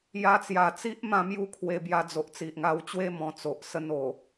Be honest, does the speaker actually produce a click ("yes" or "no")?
no